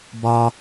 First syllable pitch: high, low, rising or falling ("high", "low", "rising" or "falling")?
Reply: high